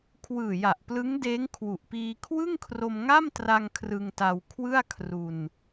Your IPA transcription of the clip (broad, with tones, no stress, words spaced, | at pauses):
kʰwɯː˨˩ja˨˩ʔplɯ˦˥ŋdeː˦˥ŋ kʰwu˨˩ʔpiː˧ kʰwɯ˥˩ŋkʰro˧mŋa˥˩mtra˧ŋ kʰrɯ˧ŋta˧w kʰwɯ˥˩a̯kʰru˧n